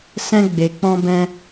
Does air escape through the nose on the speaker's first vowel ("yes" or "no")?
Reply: yes